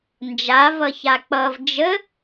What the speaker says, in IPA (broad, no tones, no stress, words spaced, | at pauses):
nd͡ʒa vʌçak͡pʌv d͡ʒə